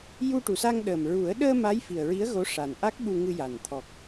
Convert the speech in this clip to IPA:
j u˧ ʈ u˨˩ s a˧ ŋ ɗ ə˨˩ m ɹ u˨˩˦ ə̯ ɗ əː˧ m a˧˥ j f i˨˩ ə̯ ɹ i˧˥ ə̯ ɣ o˧˥ ʂ a˨˩ n ʔ a˦˥ k̚ ɓ u˧ ŋ ɨ˧ j a˨˩ n t̪ʰ ɔ˨˩ k̚

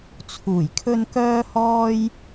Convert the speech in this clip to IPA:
t͡sʰ uː˨˩ j kʰ ɵ˧ n k œː˥ h ɔː˥ j

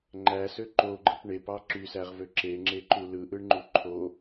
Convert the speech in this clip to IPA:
ŋ͡ǃ æ s ø ǃ o ɡ͡ǃ ɯ p ɳ e p ɑ ǁ y s æ ʁ v ø ǁ e ŋ͡ǁ e ǃ u l ɯ ʔ ɯ ɳ ŋ͡ǃ u ǃʰ o

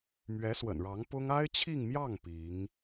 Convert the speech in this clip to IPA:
m ɥ ɛ˧˥ s w ə̰˨˩ n ɻ ɑ˧˥ ŋ p ʊ˥ ŋ a˥ ɪ̯ t͡ɕʰ i˥˧ ŋ m j ɑ˥˩ ŋ p i˧˥ ŋ

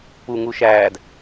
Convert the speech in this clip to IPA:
p u ŋ u ʃ æː d

